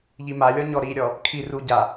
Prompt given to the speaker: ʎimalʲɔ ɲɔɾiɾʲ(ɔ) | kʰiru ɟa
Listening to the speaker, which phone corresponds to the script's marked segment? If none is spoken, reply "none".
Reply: ɔ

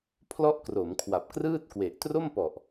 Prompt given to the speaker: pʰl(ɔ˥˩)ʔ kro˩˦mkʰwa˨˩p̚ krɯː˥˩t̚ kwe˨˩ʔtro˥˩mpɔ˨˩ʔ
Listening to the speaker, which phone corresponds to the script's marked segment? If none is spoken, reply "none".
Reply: ɔ˥˩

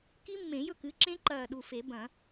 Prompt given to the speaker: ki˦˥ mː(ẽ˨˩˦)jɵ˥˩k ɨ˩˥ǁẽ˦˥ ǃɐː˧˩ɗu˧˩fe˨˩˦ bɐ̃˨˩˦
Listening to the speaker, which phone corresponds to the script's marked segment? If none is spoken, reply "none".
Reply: ẽ˨˩˦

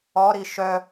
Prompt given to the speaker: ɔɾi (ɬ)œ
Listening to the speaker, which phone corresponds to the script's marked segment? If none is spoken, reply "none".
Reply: ʃ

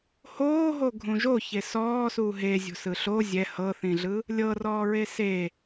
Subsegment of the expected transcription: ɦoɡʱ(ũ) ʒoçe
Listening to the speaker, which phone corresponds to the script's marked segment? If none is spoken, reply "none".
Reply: ũ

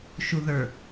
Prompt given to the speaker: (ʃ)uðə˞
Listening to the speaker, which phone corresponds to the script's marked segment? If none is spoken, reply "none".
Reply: ʃ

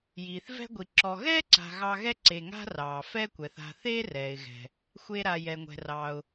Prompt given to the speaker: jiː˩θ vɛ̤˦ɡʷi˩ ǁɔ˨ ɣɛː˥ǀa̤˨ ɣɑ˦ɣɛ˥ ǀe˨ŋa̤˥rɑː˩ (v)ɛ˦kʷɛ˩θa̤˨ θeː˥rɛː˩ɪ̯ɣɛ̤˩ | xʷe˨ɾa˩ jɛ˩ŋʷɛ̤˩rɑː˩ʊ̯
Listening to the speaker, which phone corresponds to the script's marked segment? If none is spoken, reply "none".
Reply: f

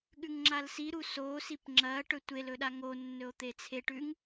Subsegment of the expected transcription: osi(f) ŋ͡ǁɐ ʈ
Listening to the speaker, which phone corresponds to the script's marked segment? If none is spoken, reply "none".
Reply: p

